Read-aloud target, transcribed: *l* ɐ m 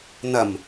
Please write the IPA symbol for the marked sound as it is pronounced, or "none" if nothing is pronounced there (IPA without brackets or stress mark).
n